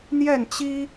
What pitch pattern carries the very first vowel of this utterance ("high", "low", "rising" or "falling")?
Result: falling